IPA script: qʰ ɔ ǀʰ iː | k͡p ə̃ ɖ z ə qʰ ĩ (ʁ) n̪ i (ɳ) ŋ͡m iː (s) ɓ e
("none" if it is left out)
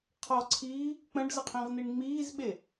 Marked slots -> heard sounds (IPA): ʁ, ɳ, z

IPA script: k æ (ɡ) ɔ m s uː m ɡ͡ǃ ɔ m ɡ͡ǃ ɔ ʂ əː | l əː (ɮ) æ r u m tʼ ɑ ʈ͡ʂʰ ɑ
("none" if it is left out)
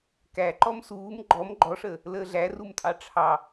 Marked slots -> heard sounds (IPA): ǃ, ɮ

